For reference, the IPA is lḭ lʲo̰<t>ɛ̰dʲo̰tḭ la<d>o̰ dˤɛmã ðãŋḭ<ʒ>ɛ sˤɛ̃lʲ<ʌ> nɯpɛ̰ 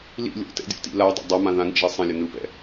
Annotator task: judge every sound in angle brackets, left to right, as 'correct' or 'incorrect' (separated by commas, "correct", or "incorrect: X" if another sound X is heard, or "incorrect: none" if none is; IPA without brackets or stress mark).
correct, incorrect: dˤ, correct, correct